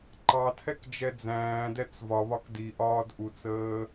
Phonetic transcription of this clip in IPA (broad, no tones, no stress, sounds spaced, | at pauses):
ǃ ɑ tʰ ɛ k d͡ʒ ɛ d͡z æ̃ː d ɛ t͡s v ɒ β ɒ k d i ʔ ɒː d ʔ u t͡s əː